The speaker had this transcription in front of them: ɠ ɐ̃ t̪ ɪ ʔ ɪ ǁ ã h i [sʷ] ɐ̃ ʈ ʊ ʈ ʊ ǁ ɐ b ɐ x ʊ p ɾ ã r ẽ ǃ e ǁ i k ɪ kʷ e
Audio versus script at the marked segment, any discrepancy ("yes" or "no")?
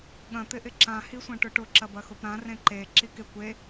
no